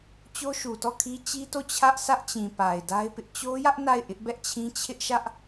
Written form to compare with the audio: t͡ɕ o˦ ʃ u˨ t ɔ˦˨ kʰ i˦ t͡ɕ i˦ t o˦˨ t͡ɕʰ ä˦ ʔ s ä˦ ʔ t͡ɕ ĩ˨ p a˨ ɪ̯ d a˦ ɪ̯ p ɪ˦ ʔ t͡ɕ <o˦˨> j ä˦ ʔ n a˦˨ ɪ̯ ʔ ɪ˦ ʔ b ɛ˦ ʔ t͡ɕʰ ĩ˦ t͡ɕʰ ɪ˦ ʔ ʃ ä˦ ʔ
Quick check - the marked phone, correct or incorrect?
incorrect